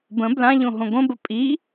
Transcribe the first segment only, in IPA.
b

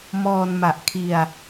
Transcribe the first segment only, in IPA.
m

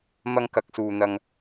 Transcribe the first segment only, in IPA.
m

